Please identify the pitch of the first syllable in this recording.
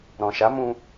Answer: low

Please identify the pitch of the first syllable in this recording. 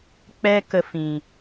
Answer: high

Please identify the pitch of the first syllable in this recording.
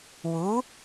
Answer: rising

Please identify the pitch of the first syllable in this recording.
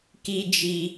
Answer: high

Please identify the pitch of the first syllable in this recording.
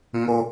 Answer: high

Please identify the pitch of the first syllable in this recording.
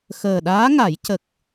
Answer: low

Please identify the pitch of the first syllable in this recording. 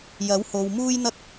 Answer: rising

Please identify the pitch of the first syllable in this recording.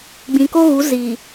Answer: low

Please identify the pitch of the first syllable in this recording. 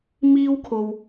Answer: high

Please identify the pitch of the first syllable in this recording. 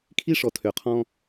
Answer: high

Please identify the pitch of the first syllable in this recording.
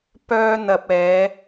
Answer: high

